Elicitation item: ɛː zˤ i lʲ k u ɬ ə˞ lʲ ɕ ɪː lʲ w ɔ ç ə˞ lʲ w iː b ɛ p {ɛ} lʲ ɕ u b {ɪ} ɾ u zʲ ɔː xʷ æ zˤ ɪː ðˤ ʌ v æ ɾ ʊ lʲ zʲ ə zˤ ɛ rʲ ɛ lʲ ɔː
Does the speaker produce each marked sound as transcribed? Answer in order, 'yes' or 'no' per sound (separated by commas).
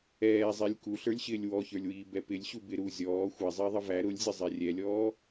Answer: no, yes